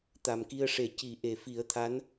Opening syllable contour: low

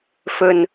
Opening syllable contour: low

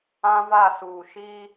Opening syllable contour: high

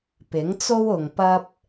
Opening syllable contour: rising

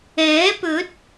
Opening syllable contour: rising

